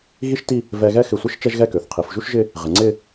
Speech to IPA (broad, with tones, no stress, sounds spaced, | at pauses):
ɣ i˥ ʃ t i˥˧ | v ɛ˧ ɣ ɛ˥˧ x ɪ˧˩ sʷ ɪ˥ ʃ t͡ʃ ɛ˥ ʒ ɣ ɛ˥˧ k ø˩˧ θ qʰ i˩˧ f ʒ u˥ ʃ ʒ ɪ˥˧ | ʁ ɪ˩˧ ŋ͡ǀ ɪ˥˧